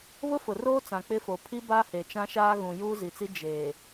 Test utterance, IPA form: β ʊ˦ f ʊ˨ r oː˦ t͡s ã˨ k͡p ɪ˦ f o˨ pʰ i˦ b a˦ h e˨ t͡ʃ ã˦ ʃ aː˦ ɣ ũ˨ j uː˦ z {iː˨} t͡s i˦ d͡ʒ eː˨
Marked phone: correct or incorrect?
incorrect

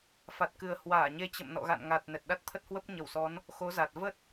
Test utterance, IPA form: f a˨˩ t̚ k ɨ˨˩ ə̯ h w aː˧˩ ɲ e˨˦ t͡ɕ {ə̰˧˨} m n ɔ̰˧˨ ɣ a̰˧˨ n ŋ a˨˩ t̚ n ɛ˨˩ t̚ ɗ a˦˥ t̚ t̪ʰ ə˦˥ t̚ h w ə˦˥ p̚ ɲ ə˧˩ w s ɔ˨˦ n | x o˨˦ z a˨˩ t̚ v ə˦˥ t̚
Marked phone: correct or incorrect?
correct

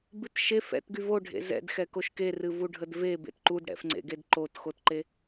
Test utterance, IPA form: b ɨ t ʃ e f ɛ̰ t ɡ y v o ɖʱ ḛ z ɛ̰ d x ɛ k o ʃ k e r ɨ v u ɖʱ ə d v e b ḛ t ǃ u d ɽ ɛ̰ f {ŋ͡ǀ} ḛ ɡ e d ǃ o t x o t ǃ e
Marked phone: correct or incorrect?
correct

